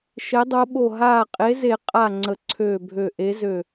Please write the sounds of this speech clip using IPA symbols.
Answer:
ʃ e˨˦ dˤ o˨˦ ɓ o˧˩ ɦ aː˧˩ qʼ e˨˦ z e˨˩˦ qʼ a˧˩ ŋ͡ǀ ə˨˩˦ ǀʰ øː˧˩ bʱ ø˧˩ ʔ e˨˦ z ø˧˩

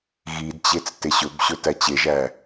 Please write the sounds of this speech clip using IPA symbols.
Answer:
ɣ i d t͡ɕ e t͡s t e ɕ ɵ b ɕ ɵ t æ t͡ɕ e ʒ æ

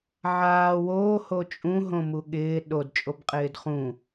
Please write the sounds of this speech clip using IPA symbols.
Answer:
ʕ aː w oː h o t͡ʃʼ ũ ɦ õ m u ɠ ɪː ɗ o d t͡ʃʼ o b qʼ ɪː d χ ũ

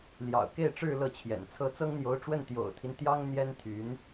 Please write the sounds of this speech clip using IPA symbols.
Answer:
l j ɑ̰˨˩ ʊ̯ k e˥˧ ɪ̯ ʈ͡ʂ ɻ̩˥˧ l ɤ˥˩ t͡ɕʰ j ɛ̰˨˩ n t͡sʰ ɤ˥ t͡s ɤ˥ ŋ n̪ j o˧˥ ʊ̯ ʈ͡ʂ w ə˥˩ n t̪ j o̰˨˩ ʊ̯ t̪ʰ i˦ n t̪ j ɑ˥ ŋ n̪ j ɛ˥ n t̪ʰ y˧˥ n

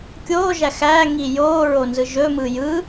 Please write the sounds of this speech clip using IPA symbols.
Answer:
kʲ oː ʒ æ x æ ŋ i j oː ɹ o n z ɯ ʒ ɵ m ɯ j ɯ

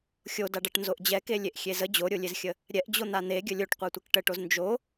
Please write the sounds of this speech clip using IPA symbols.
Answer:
xʲ o d a ɖ a ʈ n z o ʔ d͡ʑ ɛ k e lʲ e ʔ xʲ e z ə d͡ʑ o ɾʲ o lʲ e z xʲ ə | ɾʲ ɛ ʔ d͡ʑ o n̪ a n̪ e ɡʲ ə lʲ o ʈ qʷ a tʷ e k ʈ ə ʈ o z n d͡ʒ o

